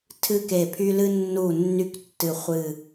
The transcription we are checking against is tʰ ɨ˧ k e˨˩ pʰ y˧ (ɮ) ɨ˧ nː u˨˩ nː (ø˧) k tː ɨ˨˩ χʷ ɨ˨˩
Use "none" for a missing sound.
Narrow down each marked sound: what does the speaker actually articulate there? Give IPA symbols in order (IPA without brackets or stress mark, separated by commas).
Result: l, y˧